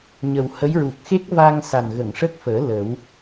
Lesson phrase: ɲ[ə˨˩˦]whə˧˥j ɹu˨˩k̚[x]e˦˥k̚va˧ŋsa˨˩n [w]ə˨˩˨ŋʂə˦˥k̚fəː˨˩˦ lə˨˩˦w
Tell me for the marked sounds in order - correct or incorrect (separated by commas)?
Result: incorrect, correct, incorrect